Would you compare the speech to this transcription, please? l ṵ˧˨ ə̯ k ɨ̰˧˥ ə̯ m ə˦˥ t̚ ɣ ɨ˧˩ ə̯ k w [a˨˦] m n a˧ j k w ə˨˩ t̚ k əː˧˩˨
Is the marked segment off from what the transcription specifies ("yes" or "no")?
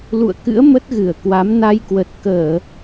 no